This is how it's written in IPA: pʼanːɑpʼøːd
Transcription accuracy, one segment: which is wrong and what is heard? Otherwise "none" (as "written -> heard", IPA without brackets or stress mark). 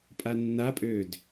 ɑ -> a